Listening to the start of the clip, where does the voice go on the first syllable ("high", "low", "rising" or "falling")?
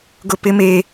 high